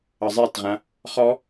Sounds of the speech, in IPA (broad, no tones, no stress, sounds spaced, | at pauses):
ə zˤ e t ʁ ã | χ ɔ